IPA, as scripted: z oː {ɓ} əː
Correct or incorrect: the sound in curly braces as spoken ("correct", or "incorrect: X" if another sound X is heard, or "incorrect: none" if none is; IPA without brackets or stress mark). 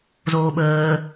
correct